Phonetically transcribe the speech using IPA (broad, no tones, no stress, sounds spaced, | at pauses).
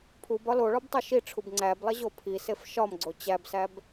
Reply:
pʰ u b ɒ l o ɭ ɒ b tˤ o ʃ i ʈ͡ʂʰ u b ŋ͡ǀ æ b lˠ e ʑ o pʰ i s e f ʃ ɒ m ɡ͡ǀ o t͡ɕ æ b s æ b